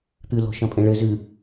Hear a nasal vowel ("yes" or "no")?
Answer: yes